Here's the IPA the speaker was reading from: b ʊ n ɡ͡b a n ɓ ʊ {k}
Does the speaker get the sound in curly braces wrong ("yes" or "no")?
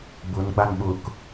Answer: no